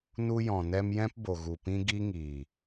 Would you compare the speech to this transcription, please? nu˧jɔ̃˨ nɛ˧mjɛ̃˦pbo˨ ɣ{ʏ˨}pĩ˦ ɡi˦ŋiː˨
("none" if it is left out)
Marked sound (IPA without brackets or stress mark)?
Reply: u˨